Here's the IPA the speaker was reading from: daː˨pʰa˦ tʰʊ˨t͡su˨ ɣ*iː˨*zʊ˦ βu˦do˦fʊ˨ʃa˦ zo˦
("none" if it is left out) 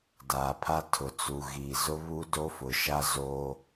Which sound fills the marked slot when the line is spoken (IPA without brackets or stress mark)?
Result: iː˨